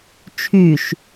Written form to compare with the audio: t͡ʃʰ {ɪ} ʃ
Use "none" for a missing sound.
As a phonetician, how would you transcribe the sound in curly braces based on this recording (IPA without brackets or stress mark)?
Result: y